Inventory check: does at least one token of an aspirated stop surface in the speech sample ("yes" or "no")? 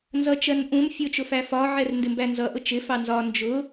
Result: no